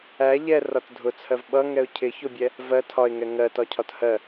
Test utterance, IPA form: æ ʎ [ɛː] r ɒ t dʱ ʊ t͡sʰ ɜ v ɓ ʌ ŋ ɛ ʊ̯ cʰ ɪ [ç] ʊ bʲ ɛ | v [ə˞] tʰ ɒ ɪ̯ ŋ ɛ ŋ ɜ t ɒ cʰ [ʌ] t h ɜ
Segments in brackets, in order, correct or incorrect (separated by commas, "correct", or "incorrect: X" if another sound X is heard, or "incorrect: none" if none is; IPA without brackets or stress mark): incorrect: ɛ, correct, incorrect: ɜ, incorrect: ɒ